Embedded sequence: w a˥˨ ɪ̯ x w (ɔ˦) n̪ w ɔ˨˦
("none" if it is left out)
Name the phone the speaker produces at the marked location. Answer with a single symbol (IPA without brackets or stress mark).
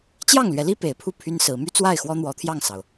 ɔ˦